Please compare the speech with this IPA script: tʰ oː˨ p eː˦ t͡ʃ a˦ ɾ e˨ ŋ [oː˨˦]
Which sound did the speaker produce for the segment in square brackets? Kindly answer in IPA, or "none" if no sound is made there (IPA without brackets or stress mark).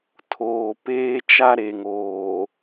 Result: oː˨